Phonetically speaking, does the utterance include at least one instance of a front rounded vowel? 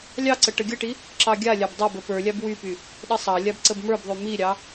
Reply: yes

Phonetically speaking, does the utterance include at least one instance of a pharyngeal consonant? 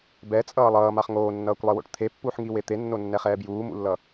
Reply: yes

